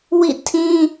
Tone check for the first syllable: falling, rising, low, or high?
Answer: falling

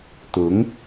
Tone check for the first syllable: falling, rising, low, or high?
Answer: rising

